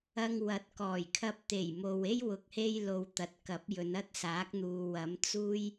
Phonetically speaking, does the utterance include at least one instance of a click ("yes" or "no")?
no